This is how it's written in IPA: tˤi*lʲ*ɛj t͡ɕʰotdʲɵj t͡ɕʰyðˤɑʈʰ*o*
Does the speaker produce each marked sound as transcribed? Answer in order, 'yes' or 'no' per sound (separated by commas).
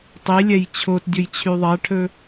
yes, no